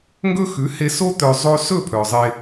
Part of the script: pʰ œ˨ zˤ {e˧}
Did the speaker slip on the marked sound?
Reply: no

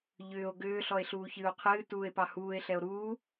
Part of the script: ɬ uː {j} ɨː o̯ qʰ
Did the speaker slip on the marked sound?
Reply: yes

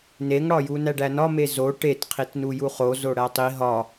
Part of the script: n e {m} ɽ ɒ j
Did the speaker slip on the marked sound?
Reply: yes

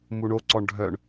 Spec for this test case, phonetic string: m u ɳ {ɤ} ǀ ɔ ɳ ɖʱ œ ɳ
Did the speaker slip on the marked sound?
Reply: yes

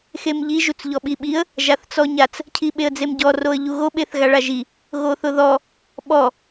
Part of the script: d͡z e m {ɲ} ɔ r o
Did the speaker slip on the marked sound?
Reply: yes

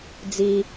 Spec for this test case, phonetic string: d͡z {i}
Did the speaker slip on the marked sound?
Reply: no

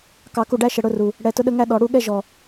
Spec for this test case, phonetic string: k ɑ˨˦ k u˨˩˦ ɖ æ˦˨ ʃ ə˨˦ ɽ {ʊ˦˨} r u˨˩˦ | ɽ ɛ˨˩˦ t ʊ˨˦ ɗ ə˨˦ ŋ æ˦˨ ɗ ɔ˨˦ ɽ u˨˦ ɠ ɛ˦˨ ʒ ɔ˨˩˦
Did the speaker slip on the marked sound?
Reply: no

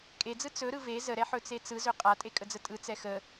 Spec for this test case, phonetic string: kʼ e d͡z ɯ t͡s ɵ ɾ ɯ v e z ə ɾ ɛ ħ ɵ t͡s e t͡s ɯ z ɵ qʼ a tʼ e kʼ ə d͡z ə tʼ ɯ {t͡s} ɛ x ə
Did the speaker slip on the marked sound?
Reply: no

